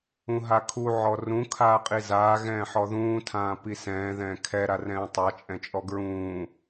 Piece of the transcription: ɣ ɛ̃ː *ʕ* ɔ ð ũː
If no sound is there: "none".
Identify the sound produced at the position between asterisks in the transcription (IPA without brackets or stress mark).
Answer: ħ